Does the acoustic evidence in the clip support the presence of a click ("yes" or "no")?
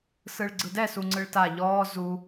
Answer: yes